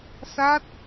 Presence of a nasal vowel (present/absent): absent